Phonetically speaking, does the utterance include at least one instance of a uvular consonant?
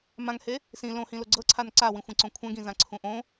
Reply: no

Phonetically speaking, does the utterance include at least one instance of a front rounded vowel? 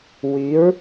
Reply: yes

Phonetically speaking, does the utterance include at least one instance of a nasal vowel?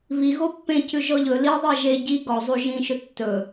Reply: yes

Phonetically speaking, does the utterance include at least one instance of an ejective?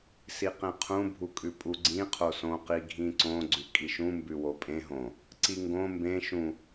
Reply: yes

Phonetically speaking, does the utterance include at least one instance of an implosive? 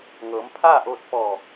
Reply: no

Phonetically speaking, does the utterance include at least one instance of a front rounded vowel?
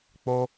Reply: no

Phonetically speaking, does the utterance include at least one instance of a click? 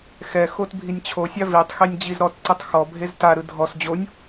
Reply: yes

